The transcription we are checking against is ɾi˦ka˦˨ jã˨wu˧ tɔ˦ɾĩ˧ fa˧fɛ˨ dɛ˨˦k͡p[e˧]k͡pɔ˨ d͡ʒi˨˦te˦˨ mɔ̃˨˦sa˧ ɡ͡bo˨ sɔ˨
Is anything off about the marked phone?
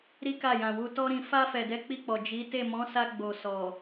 yes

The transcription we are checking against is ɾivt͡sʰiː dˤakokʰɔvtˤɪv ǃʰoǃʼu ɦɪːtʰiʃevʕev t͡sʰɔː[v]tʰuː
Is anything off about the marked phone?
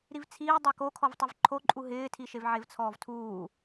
no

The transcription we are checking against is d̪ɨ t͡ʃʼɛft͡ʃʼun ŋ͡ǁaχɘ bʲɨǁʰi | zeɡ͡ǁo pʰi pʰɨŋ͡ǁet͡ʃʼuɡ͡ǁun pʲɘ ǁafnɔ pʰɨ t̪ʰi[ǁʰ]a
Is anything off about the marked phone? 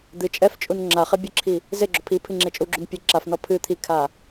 yes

